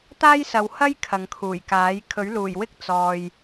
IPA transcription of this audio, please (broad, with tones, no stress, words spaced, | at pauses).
t̪aː˥jsɐ˨whɐ˥j kʰɐ˨ŋkʰuː˨˩jkaː˨˥j kʰɵ˨˥ɥluː˨˩jwɪ˥k̚ t͡sɔː˨j